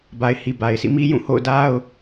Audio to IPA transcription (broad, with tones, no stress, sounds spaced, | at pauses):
b a˨ ɪ̯ h i˨ b a˨ ɪ̯ s ḭ˦˨ m i˦ j ũ˦˨ h o̰˦˨ ʊ̯ d a˦ ʊ̯